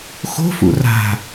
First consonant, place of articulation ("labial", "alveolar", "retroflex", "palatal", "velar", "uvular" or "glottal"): velar